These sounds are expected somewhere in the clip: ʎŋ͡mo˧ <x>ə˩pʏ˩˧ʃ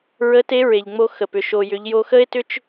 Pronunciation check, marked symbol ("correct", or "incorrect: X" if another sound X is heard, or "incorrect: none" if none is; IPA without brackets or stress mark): correct